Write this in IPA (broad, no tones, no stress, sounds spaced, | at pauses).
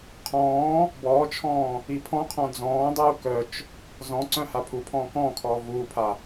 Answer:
qʰ ɔ̃ː | b ɔː t͡ʃʰ ɔ̃ː | i pʰ ɔ̃ qʰ ɔ̃ d͡z ɔ̃ː dˤ uː k œ t͡ʃ | z ɔ̃ ǀ œ̃ h a pʰ u pʰ ɔ̃ː k ɔ̃ː kʰ ɔː v uː pʰ a